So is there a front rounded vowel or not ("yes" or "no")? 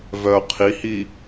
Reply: yes